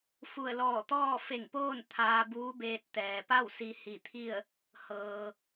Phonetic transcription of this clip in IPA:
f u˧˩ ə̯ l ɔː˧˩ t̪ ɔː˥˨ f e˧˩ ŋ p oː˥˨ n t̪ʰ aː˧ b uː˧˥ b eː˧ t̚ t̪ ɛː˩ p a˥˨ w s i˧ h i˧˩ t̪ʰ i˥˨ ə̯ | h ɤː˩

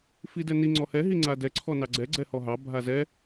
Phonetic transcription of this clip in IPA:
f i d ɛ n i ŋ͡ǀ ɔ h ɛ ɦ i ŋ͡ǀ a d ɛ ǀʰ ɔ n ɑ ɡ͡ǀ ɛ ɡ͡ǀ ɛ h ɔ ɦ ɑ bʱ a z ɛ

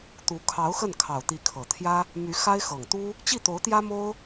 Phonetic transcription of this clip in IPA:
t̪ u˧˥ kʰ ɑ˧˥ ʊ̯ x ə˥˩ n kʰ ɑ˨˩ ʊ̯ t̪ i˧˥ kʰ ɤ˨˩ t̪ʰ j ä˥ | m y˧˥ x a˥ ɪ̯ x ɤ˨˩ ŋ t̪ u˥ | t͡ɕ i˥˩ t̪ o˧˥ ʊ̯ t̪ j ä˥ m o˥ ʊ̯

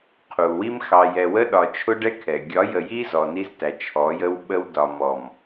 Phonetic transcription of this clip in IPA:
qʰ u˨ w i˦ m x ɑ˨ j ɛ˨ w ə˦ ɗ ɒ˨ t͡ʃʰ ʊ˦ ɖ ɛ˦ kʰ ɛ˨ ɡʲ ɒ˨˦ j ə˨ j i˦ z ɔ˨ n i˦ z t æ˨ t͡ʃʰ ɔ˨˦ j ə˦ w ɓ ə˦ w d ɒ˨ m ɔ˨ m

